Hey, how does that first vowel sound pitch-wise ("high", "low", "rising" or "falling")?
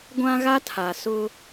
high